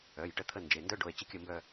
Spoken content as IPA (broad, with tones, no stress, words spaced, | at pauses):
œ˩˧˩j ʈə˥˧t̪ʰə˥˧nd͡ʒe˩˧˩ ndœ˥ɖo˩˧˩e̯ t͡ɕə˥kʲə˥˧mbœ˥˧